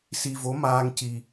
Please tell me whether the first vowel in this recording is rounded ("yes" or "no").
no